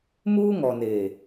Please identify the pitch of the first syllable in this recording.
high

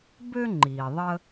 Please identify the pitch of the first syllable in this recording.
high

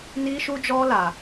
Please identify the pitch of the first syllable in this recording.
high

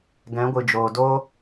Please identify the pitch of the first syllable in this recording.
rising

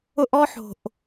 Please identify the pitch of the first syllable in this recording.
high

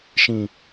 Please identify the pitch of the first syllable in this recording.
low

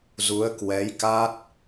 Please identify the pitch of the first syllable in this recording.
rising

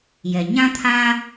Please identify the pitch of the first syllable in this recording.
low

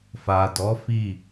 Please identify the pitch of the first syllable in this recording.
low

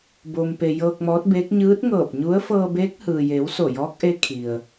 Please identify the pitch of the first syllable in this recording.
low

